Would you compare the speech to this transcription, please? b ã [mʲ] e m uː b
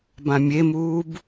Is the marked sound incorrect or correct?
correct